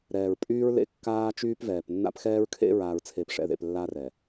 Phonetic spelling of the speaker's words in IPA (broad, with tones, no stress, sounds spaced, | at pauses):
ɾ ɛː˨ ɹ pʼ yː˦ ɹ l ḛ˦˨ kː aː˦ t͡ʃ yː˦ p v ɛː˨ p nː a̰˦ p x ɛː˦ ɹ kʰ ḛ˦ ɹ aː˨ ɹ t͡sʰ e˨ p ʂ ɛ̰˨ ð ḛ˨ p lː a˦ r ɛ˨